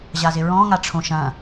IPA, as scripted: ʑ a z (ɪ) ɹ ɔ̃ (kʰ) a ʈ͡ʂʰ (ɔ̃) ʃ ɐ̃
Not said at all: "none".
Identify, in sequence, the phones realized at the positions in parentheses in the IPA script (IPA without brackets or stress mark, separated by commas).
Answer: ɪ, ŋ, õ